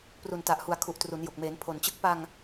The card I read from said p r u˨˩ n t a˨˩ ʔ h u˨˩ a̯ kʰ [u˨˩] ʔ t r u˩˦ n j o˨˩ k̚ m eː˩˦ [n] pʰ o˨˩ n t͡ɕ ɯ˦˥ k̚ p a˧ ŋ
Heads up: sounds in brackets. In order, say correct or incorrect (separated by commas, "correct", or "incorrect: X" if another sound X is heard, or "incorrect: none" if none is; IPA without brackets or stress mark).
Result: correct, correct